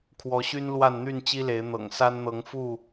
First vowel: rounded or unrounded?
rounded